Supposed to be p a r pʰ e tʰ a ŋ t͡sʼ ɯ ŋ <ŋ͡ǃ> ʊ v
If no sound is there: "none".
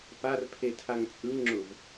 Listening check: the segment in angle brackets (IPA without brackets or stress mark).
ŋ͡ǁ